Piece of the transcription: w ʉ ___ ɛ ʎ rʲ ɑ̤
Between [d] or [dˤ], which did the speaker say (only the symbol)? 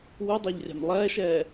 dˤ